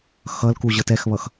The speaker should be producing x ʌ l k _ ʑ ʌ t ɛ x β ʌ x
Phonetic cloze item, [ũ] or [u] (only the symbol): u